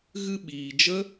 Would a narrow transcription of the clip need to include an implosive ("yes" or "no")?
yes